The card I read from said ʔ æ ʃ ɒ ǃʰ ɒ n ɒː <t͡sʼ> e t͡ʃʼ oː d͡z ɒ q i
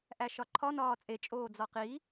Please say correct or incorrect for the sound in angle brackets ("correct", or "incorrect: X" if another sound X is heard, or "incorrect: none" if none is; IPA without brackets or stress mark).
correct